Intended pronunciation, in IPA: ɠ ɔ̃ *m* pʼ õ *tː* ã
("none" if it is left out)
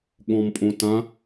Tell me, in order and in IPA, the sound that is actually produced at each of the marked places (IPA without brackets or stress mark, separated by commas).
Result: m, t